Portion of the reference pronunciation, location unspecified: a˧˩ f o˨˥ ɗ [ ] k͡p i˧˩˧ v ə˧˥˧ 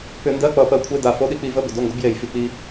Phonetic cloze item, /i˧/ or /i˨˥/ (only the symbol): i˧